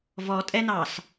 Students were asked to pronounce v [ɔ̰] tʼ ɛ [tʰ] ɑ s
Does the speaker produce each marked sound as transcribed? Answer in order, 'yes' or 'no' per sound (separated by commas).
no, no